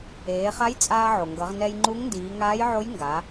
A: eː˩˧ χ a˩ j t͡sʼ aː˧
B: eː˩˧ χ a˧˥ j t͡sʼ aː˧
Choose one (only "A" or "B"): B